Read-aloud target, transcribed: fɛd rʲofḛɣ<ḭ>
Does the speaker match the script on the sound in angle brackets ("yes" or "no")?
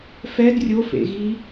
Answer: no